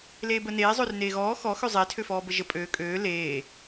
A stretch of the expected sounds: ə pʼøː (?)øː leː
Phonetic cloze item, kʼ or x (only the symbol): kʼ